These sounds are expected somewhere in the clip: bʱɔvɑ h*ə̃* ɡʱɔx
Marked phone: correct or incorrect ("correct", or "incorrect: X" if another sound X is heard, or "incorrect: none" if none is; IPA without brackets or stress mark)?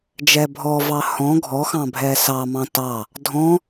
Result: incorrect: ɔ̃